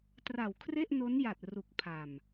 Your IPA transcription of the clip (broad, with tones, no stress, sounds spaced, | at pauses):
t r a˨˩ w kʰ r e˥˩ ʔ n o˦˥ n j a˨˩ t̚ r u˨˩ k̚ pʰ a˨˩ m